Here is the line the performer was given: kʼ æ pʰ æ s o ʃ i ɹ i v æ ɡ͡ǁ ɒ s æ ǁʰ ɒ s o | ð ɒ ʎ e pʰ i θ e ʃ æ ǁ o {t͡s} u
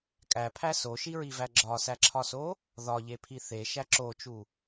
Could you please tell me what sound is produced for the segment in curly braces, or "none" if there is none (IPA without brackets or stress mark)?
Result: t͡ʃ